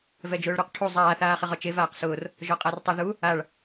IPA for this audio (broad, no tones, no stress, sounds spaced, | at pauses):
v ɛ d͡ʒ ʊː ɭ ɾ u q ʈʰ u zˤ aː θ aː χ ɪ ʁ ɔ t͡ʃ e v aː q s ʊː r | ʒ ɔ qʼ a r tˤ ʊ ð u | a ɭ